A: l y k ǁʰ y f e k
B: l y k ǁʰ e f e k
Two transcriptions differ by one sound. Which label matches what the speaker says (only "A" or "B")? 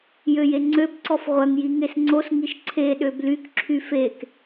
A